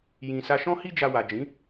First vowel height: high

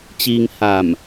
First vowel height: high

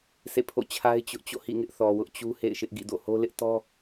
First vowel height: mid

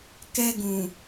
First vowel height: mid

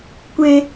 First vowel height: mid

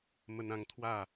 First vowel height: mid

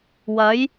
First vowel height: low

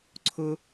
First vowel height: high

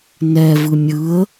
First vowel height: mid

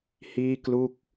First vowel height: high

